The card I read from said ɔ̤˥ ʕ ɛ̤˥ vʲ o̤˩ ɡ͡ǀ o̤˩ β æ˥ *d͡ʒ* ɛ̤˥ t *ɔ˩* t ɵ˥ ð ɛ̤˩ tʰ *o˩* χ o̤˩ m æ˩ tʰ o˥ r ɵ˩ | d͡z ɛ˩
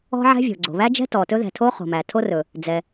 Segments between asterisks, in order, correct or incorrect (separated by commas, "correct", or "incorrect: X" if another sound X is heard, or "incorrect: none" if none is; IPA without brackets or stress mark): correct, correct, incorrect: o˥